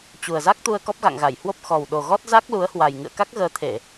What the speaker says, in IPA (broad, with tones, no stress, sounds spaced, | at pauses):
t͡ɕ u˨˩ ə̯ z a˦˥ k̚ t̪ u˧ ə̯ k ɔ˦˥ p̚ ɣ a̰˧˨ ŋ ɣ a˧˩ j h w o˦˥ p̚ x ɔ˨˩ w ɗ o˨˩ ɣ ɔ˦˥ t̚ z a˦˥ k̚ l u˨˦ ə̯ h w a˨˩ j ŋ ɨ̰˧˨ ə̯ k a˦˥ k̚ ɣ əː˨˦ t̪ʰ e˧˩˨